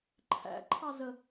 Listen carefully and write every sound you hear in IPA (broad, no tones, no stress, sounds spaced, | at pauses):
ǃʰ æ̰ ǃʰ ɑ z ə